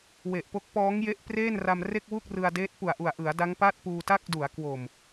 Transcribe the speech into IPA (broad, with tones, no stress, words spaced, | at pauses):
we˨˩ʔpo˦˥k̚ pɔː˦˥ŋje˦˥ʔpreː˥˩nra˧m re˥˩k̚wu˥˩k̚rɯ˧a̯deː˦˥t̚ pu˨˩a̯ʔu˨˩a̯ʔɯ˩˦a̯ da˦˥ŋpa˥˩t̚ puː˧ta˥˩k̚ du˩˦a̯kwo˨˩m